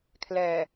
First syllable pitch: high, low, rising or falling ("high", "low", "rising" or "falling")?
low